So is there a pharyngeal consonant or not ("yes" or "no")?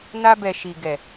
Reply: no